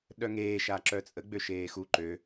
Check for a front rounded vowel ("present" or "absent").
present